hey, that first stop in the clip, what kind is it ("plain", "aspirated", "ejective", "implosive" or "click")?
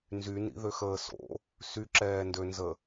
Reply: click